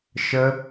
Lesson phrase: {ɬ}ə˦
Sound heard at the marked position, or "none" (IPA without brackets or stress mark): ʃ